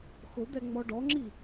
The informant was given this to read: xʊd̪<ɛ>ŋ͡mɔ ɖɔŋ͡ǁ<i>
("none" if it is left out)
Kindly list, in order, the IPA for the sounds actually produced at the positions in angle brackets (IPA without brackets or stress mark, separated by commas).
ɛ, i